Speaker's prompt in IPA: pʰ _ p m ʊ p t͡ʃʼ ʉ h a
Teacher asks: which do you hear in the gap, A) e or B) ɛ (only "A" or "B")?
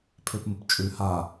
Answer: A